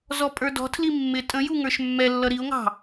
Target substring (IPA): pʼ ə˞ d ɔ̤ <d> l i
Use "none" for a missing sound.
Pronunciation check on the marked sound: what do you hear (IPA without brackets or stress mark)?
tʰ